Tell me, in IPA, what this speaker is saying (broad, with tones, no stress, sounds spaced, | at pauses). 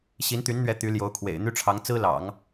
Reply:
ɕ i˧˥ n t̪ y˧˥ n n̪ ɥ ɛ˧˥ t̪ y˧˥ l j o˧˥ ʊ̯ kʰ w ḛ˨˩ ɪ̯ n̪ y˥ ʈ͡ʂʰ ɑ˧˥ ŋ t͡s ɹ̩˥ l ɑ̰˨˩˦ ŋ